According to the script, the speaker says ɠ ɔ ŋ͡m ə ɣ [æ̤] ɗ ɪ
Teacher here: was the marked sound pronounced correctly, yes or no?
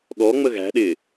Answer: yes